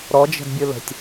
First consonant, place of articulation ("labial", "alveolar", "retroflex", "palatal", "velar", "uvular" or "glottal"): alveolar